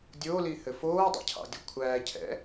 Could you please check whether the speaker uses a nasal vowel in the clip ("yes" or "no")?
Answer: no